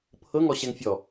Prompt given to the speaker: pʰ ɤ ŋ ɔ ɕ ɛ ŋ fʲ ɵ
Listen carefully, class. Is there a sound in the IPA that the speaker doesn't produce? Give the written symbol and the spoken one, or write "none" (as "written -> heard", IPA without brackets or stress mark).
ɵ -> ɔ